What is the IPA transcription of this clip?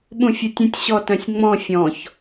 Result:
ɓ ũ fʲ ʊ tʲ ə̃ tʲ ɕ ɔ t œ̃ sʲ ŋ͡m ɔ̃ fʲ ɔ̃ ç

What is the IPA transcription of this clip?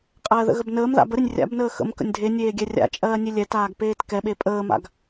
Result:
qʼ ɜː ð ə̰ ɣ ə b n əː m ð a̰ b ə ɾ e nʲ rʲ a̰ b n əː x ə̰ m k ə̰ nʲ dʱ e nʲ eː ɡʲ ɛ rʲ a̰ t͡ʃʼ ɜː nʲ e lʲ ɛ t aː ɡ p eː t k ɛ ɓ e pʼ əː m a̰ ɡ

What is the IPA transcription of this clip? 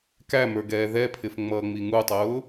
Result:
k æ m ə˞ ɡ ɛː ð ɛ pʰ ɪ f ŋ͡m ʌː ŋ͡m i ŋ u tˤ ʊː

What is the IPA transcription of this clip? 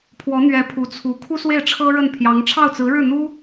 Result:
pʰ w ɔ˧˥ n̪ ɥ ɛ˧˥ pʰ u˧˥ t͡sʰ u˧˥ kʰ u˥ s w e˥˩ ɪ̯ ʈ͡ʂʰ ɤ˥ ɻ ə˥˩ n pʰ j ɑ˧˥ ŋ ʈ͡ʂʰ ɑ˥˩ ʊ̯ t͡s ɹ̩˧˥ ɻ ɻ̩˥˩ n̪ u˥

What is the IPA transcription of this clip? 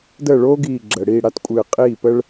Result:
d əː˥˩ ɭ oː˥ ɡ iː˧˩ ɡ͡ǁ əː˩ ɽ iː˥˩ ɽ a˥ t kʷʼ ɨː˧˩ qʼ iː˥˩ p ə˥ ɭ

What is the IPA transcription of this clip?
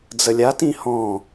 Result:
d͡z ə lʲ a t ĩ h ɔ̃

